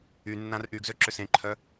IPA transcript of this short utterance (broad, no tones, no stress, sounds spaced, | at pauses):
y nː ã r ʔ y ɡ z ø ǁ ʏ s ẽ ǃʰ œ